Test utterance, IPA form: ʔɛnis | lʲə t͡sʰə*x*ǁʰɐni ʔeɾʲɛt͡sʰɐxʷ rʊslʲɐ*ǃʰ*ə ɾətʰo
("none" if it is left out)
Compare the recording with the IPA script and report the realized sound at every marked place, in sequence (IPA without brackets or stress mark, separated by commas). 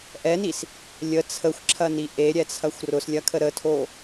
xʷ, kʰ